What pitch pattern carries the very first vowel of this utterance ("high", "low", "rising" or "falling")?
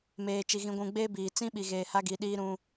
low